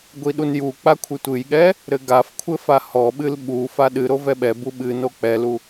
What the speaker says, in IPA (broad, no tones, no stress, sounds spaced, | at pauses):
ɡʷ i ɗ u n j u k͡p a kʷʰ ɨ tʷ ɨ j ɠ ɛ | ɾ ɘ ɡ a f kʷʰ ɘ f a h ɔ ɓ ɨ l ɓ u f a ɗ ɨ ɾ o v ɛ ɓ ɛ b u ɓ ɨ n o k͡p ɛ l u